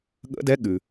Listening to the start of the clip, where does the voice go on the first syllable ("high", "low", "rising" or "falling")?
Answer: rising